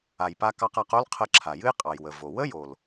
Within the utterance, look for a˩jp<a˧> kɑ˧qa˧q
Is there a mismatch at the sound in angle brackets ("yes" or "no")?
no